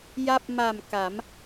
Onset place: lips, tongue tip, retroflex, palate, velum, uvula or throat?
palate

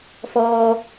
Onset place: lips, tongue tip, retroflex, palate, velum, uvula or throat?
lips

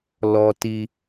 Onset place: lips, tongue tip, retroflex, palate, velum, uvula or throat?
tongue tip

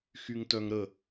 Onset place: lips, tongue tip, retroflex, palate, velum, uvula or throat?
velum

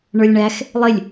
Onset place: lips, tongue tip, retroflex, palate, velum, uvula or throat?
retroflex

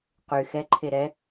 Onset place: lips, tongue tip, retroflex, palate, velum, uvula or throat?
uvula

